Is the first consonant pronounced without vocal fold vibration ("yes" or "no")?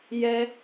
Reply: no